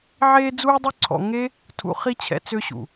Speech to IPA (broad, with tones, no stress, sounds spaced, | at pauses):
ʕ eː˧ d͡z uː˧ dˤ y˧ ǀʰ ɔ̰˨ ŋ e˦ | tʰ ṵ˨ χ i˧ t͡ɕʰ ɛ̰˨ t͡s ø˧ ɕ ṵ˨